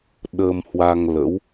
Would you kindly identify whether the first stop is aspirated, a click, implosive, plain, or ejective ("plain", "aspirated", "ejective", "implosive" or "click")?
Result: implosive